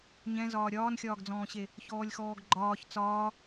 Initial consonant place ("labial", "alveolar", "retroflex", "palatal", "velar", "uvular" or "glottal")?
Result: palatal